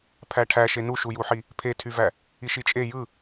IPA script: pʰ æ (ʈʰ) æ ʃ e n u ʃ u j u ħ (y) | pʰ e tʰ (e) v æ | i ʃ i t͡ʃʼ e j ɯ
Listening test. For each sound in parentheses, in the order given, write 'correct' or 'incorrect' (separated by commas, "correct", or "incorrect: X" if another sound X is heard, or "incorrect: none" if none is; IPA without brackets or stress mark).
correct, incorrect: i, incorrect: y